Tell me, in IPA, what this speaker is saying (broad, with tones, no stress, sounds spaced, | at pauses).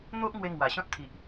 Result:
n̪ o˦ ʔ ŋ w e˧ ŋ w a˨˩ ɕ ɔ̃˦ t̚ t̪ʰ i˨ ʔ